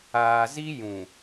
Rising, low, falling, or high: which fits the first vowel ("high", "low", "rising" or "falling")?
low